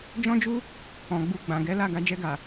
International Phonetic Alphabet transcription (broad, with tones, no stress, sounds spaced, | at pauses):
d͡ʒ ɔ̃˦ d͡ʒ u˦ | ɔ̃˨ ɡ͡b u˧ ɡ͡b ã˨ ɡ ɛ˨˦ l a˦˨ ɡ a˧ d͡ʒ ɛ˧ ɡ a˨